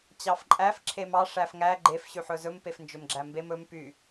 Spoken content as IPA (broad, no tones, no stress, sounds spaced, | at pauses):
t͡ɕ ɑ f ǃʼ æ f ǁʰ e m ɑ ʂ æ f ŋ æ ɡ͡ǃ e f ɕ y ħ ɵ z ɵ m p e f n d͡ʒ ɵ m ɡ͡ǁ æ m b e m ɵ m p y